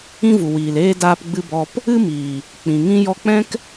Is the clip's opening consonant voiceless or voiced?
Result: voiced